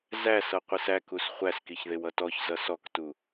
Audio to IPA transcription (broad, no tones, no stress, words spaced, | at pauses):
zæsʌ qʷisækus χʷæskiçðɪw ʌtɔçzʌ sɔktu